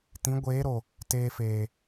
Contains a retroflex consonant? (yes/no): no